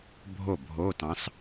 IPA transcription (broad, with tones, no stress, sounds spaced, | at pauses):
bʱ o˥˩ bʱ o˧˥˧ t ɑ̃˧˥ s